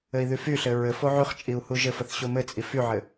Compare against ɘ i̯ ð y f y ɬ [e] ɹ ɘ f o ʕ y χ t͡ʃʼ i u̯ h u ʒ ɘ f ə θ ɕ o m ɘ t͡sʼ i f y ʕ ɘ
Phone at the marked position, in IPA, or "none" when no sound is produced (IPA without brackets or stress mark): ɘ